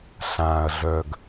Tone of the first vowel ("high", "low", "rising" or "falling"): low